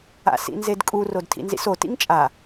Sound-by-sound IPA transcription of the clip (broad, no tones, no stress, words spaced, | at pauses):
a̰sḭnzedkʼu rodtʰḭnzḭso tḭŋt͡ʃʼa